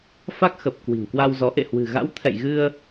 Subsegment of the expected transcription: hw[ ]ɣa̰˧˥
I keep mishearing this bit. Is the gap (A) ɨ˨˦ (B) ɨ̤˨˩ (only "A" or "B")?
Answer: B